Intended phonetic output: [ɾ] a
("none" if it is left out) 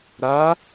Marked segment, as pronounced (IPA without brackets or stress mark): ɾ